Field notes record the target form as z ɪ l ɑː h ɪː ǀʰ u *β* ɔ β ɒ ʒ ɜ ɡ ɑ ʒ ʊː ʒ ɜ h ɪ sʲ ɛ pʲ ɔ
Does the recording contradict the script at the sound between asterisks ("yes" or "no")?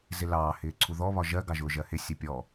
yes